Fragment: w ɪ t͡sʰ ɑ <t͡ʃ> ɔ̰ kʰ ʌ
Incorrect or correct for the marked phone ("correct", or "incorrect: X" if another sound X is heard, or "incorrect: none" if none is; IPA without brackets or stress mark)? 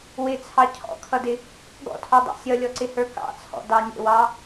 incorrect: cʰ